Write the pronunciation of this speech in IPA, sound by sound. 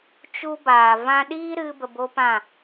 t͡ʃ u˦ b aː˨ v ã˧ ɗ iː˦ ɾ ɨ˧ b ə˧ b o˦ p ã˦˨

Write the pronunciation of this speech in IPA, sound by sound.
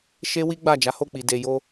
ʃ e˦ w i˦ ɡ͡b a˦˨ d͡ʒ a˨˦ h o˦˨ k͡p i˨ d e˨ j o˧

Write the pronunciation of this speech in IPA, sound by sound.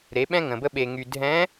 ɾ e˨˦ ɓ ɛ̃˦ ŋ ə̃˨ b ə˦ ɓ e˨ ŋ y˨ dʱ ɛ̃˨˦

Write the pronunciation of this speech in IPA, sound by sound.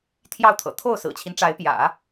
t̪ʰ j ɑ˥˩ ʊ̯ t̪ʰ ɤ̰˨˩ t̪ʰ o˥˩ ʊ̯ s ɹ̩˨˩ t͡ɕʰ i˦ n ʈ͡ʂ a˧˥ ɪ̯ p j ä̰˨˩˦

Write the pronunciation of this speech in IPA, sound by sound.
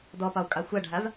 d ɔ p ɒ u̯ kʼ ɑ xʷ a ɖʱ a v

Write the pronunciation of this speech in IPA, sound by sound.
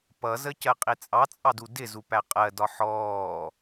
p ʌ z ə c ɜ qʼ i t͡sʼ ɑ t͡sʼ ɑ d u d ɪ z u p æ qʼ ɜ d ɒ ħ ɔː

